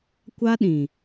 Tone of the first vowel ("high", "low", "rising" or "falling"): high